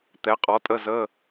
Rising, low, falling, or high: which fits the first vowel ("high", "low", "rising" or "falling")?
rising